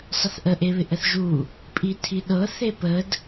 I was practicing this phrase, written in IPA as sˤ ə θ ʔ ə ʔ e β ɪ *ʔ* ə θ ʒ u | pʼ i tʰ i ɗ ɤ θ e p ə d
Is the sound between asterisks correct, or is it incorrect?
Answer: correct